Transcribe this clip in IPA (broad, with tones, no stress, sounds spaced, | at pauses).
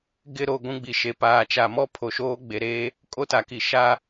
ɡ ɪ˦˨ ɾ o˦˨ ɡʷ ũ˦ ɡ͡b i˨ ʃ e˨ p aː˨ t͡ʃ a˨ m ɔ˦ pʰ o˨ ʃ oː˦ ɡ͡b e˨ ɾ eː˦ | kʼ o˦ t a˨ k i˨ ʃ a˦